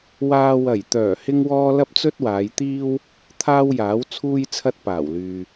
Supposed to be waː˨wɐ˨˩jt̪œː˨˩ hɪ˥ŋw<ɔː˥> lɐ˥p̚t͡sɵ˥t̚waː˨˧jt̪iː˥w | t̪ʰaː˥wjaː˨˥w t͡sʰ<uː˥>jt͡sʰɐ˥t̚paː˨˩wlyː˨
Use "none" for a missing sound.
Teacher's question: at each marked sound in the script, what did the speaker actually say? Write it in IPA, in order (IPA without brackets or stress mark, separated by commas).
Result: ɔː˥, uː˥